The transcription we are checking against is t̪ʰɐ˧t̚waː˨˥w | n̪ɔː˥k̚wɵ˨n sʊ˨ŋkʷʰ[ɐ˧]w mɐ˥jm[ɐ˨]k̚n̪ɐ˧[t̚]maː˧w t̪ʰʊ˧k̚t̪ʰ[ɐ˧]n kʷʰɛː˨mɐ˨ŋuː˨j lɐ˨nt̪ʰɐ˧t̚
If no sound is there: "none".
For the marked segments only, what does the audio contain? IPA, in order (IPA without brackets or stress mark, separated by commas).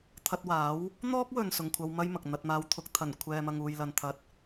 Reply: ɐ˧, ɐ˨, t̚, ɐ˨˩